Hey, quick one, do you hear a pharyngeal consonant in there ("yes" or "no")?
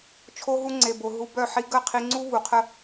yes